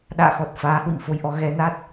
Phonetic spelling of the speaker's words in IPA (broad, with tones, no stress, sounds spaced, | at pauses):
ɗ a̰ː˧˨ x ɔ˨˩ t̚ f aː˨˦ h w ḭ˧˨ m f o˧ j ʔ ɔ˨˦ ɣ ɛ˧ n a˦˥ t̚